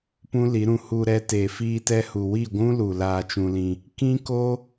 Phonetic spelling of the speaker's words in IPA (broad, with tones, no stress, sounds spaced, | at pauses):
p ũ˦ l i˨˦ ɾ ũ˧ h u˧ ɾ ɛ˧ t eː˨ f iː˧ t ɛ˧ h u˨ w i˦˨ ɡʷ ũ˦ l u˨ l aː˧ t͡ʃ ũ˧ l ĩ˧ | k ĩ˦ k o˦